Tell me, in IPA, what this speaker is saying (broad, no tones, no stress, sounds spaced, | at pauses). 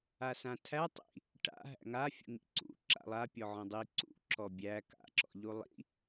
a s ã tʰ æ tˤ ḭ | ʈ a̰ ɦ æ̰ ŋ a fʲ ṵ ŋ ḭ ǀ ṵ ǁ a̰ lˠ a pʲ ɔ ʕ ɔ̃ dˤ i ǀ ṵ ǁ ɔ bʲ æ k a̰ ǁ ɔ̰ ʎ u lˠ ḭ